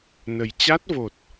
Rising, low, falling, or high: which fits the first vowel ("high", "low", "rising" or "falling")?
low